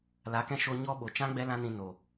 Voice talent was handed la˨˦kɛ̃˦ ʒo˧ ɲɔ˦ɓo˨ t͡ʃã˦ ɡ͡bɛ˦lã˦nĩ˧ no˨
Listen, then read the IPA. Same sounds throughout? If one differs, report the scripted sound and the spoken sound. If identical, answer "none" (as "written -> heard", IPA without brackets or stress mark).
ʒ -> ʃ